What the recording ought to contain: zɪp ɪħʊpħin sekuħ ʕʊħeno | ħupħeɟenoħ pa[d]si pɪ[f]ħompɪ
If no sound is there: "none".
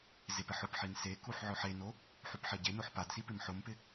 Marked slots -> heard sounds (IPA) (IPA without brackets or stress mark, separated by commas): d, m